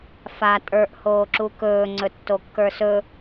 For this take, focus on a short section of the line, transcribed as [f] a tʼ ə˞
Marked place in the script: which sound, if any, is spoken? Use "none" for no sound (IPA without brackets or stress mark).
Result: f